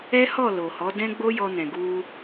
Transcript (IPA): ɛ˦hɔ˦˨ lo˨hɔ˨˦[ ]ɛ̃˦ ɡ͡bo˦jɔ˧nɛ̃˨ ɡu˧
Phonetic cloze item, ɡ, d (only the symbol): d